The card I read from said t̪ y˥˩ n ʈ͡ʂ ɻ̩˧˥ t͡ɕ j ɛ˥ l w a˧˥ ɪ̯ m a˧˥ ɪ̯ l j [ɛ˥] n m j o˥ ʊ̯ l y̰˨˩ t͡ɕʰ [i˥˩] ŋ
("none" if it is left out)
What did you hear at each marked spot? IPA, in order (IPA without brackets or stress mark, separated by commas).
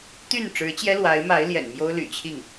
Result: ɛ̰˨˩, i˥˩